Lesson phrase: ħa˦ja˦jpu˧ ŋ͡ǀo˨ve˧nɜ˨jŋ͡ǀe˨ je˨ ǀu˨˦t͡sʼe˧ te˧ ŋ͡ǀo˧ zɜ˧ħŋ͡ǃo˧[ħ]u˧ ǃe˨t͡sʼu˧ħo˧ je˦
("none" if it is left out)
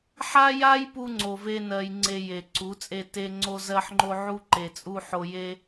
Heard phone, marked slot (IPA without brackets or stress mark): ʕ